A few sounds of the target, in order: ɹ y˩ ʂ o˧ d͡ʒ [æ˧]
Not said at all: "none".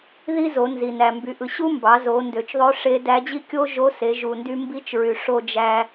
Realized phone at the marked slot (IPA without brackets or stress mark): æ˧